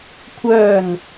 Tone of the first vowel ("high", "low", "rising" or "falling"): falling